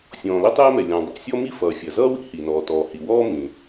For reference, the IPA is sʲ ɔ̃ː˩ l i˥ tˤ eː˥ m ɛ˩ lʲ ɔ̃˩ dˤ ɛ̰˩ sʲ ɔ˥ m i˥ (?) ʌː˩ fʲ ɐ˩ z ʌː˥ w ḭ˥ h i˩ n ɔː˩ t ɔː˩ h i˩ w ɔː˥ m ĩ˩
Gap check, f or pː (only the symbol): f